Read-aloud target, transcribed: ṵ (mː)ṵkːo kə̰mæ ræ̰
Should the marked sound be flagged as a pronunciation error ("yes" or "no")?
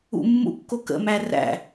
no